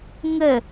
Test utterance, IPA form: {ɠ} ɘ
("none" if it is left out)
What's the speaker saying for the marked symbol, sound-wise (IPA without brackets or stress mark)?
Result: ŋ